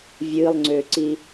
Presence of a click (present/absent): present